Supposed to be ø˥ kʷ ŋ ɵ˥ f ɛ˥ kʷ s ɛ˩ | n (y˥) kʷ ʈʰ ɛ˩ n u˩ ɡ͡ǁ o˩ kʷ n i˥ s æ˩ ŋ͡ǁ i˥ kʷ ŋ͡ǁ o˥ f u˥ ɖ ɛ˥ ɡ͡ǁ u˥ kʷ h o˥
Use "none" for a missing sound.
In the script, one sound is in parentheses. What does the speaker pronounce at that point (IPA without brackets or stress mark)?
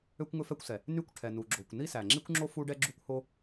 y˥